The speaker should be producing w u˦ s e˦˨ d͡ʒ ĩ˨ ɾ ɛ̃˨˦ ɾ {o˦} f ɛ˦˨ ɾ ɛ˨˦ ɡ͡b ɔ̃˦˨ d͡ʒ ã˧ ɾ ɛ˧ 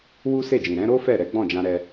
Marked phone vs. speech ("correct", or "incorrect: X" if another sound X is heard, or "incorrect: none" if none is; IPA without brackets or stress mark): correct